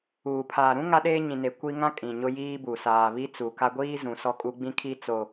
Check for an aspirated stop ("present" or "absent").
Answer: present